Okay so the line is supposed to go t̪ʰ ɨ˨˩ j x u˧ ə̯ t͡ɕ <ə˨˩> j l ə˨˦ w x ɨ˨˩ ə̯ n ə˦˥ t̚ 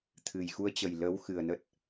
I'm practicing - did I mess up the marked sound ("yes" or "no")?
no